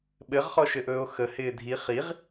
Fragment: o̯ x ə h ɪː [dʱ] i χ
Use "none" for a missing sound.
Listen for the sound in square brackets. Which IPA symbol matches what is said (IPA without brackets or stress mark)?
dʱ